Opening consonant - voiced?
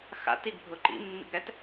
no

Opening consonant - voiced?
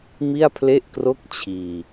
yes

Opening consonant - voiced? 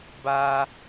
yes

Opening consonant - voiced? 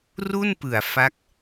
yes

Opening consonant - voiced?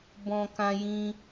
yes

